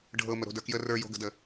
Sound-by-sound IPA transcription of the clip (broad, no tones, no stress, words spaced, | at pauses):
ɖʱɤ məɾo̤də˞kjə rə˞jo̤ɡə̤də